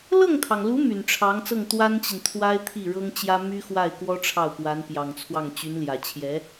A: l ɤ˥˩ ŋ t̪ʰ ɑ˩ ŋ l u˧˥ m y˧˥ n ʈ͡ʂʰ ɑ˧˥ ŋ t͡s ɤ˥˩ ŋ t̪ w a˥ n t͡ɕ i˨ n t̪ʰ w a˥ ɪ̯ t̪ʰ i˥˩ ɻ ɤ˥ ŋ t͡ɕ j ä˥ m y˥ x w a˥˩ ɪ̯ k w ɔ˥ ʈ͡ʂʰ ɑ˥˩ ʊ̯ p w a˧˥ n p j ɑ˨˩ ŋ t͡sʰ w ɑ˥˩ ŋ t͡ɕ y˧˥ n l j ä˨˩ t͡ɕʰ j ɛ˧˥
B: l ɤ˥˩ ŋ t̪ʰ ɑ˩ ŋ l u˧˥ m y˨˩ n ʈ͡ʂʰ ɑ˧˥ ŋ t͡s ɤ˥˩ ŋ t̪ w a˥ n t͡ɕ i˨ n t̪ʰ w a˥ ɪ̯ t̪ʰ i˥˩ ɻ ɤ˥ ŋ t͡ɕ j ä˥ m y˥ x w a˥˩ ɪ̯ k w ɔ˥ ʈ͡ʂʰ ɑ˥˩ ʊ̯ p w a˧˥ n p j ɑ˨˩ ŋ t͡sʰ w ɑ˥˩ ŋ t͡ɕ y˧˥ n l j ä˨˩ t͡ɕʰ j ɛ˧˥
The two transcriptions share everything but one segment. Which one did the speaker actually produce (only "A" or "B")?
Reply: B